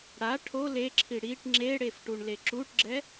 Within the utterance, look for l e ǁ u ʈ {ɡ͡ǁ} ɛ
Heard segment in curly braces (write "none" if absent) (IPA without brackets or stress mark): ɡ͡ǁ